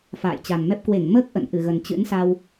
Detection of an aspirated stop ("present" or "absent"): absent